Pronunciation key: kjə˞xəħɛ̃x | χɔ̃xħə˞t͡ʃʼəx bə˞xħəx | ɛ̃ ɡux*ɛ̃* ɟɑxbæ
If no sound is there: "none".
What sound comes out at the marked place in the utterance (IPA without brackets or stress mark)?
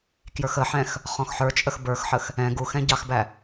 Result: ɛ̃